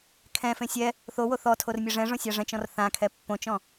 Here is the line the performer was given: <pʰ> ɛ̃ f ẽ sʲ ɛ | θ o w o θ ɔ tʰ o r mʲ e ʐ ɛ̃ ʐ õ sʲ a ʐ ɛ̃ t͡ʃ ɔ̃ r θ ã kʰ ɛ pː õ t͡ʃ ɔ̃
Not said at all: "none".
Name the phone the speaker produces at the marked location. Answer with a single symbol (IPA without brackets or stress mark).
kʰ